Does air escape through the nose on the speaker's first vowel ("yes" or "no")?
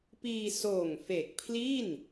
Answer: no